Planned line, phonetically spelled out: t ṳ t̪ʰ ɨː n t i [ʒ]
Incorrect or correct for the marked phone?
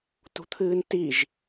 correct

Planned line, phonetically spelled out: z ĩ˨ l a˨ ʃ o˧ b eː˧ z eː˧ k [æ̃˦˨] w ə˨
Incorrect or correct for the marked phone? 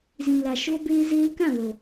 incorrect: ã˦˨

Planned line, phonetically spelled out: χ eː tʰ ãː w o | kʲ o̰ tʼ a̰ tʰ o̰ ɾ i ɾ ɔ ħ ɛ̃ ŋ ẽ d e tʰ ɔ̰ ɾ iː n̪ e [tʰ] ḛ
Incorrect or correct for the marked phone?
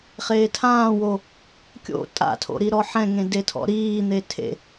correct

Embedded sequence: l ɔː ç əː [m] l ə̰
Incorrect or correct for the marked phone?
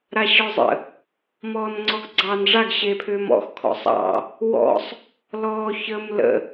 correct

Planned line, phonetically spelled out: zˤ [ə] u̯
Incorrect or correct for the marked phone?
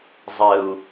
correct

